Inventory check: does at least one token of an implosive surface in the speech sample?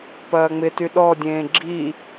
yes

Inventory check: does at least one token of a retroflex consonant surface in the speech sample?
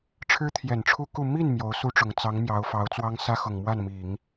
yes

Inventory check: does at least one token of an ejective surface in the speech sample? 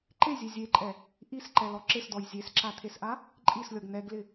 yes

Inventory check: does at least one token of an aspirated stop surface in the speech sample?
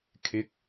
yes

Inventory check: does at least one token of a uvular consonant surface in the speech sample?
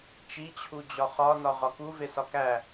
yes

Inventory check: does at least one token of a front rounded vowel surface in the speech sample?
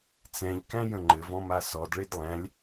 no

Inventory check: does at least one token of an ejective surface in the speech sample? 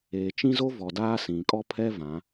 yes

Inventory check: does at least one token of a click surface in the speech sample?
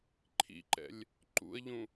yes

